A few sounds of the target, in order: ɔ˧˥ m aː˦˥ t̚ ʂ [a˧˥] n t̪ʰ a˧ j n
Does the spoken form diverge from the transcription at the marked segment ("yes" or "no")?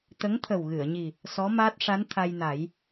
no